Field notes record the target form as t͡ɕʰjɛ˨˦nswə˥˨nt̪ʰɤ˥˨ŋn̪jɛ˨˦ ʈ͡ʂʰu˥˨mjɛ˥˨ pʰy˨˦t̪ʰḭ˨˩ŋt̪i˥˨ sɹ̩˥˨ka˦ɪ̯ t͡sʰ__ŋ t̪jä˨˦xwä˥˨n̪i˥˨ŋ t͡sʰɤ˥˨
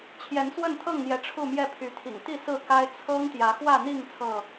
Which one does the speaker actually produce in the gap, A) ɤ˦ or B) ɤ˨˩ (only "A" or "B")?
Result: A